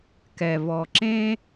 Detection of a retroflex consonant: absent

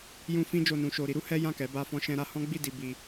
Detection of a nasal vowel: present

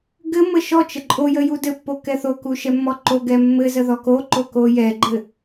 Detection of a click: present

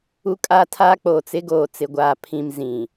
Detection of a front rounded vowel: absent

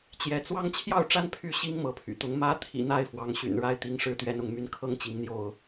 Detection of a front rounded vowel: present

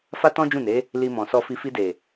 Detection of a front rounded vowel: absent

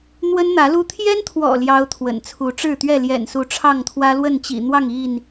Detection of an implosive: absent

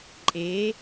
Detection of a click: present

